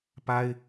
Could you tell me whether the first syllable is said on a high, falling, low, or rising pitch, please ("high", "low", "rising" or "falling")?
high